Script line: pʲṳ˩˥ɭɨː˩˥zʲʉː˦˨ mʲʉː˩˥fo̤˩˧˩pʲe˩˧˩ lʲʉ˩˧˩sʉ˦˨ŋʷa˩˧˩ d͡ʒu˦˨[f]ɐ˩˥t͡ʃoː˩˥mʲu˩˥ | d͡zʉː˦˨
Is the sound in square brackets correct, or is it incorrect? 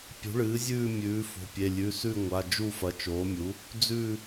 correct